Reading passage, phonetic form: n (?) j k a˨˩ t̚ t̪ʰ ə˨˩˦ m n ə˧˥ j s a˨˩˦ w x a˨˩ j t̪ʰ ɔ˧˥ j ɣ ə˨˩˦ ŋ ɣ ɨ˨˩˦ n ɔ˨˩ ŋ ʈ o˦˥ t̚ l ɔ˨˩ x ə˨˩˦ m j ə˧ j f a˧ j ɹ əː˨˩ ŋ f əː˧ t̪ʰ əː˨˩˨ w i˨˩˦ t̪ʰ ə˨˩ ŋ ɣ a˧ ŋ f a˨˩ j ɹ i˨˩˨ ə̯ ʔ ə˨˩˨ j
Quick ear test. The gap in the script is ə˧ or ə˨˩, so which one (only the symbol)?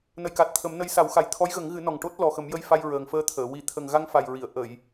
ə˨˩